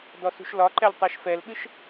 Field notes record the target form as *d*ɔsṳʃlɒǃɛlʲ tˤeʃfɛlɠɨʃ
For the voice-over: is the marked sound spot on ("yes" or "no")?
yes